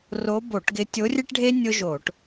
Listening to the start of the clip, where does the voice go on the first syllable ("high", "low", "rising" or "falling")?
rising